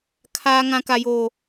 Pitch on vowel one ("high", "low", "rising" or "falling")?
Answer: high